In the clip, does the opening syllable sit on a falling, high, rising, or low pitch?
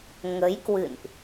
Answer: rising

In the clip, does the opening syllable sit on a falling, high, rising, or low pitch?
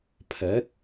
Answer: rising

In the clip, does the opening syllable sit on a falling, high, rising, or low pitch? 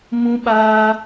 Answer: high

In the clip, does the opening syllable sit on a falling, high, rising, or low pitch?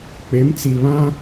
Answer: rising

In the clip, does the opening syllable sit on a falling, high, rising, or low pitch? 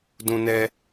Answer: high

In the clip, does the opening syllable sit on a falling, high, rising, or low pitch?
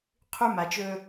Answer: high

